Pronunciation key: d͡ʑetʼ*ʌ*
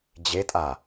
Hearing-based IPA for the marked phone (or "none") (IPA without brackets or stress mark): a